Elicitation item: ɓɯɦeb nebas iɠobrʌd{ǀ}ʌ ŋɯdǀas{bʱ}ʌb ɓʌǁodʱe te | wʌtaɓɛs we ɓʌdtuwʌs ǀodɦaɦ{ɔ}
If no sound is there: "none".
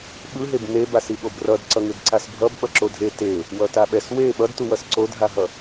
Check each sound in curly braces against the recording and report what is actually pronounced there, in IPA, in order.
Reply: ǀ, bʱ, ʌ

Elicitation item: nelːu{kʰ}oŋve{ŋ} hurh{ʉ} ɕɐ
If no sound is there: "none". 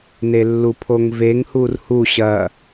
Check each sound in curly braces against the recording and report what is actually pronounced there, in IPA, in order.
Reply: pʰ, ŋ, u

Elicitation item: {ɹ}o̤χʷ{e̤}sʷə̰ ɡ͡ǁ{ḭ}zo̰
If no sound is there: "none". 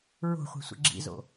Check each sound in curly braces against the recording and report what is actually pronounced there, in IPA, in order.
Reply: ɹ, e̤, ḭ

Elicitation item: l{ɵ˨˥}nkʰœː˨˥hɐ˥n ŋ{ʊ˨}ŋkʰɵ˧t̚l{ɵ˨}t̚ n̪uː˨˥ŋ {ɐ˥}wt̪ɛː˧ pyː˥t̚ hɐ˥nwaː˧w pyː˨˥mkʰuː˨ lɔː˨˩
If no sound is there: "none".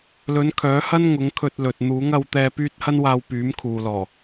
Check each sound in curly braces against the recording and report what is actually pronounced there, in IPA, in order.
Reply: ɵ˨˥, ʊ˨˥, ɵ˨, ɐ˧

